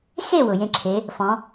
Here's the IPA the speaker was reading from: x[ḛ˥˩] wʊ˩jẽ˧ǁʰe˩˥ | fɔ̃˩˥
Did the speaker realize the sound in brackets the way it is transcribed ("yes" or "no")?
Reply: no